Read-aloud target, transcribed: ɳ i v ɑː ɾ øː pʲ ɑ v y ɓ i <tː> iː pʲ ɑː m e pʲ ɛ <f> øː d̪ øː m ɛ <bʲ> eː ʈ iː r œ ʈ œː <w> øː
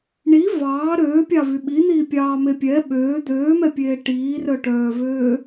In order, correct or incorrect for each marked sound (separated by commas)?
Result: incorrect, incorrect, incorrect, incorrect